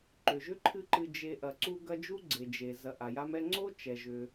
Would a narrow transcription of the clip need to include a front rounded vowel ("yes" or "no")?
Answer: yes